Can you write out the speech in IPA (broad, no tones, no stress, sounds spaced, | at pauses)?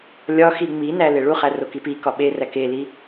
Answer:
lʲ ɒ x i ŋ͡m i n æ l e ɭ u χ æ r o k i p i k ɒ ɓ e r æ k e l i